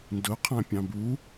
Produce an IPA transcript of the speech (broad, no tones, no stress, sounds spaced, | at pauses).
n d ʊ qʰ ã pʲ ɑ̃ b u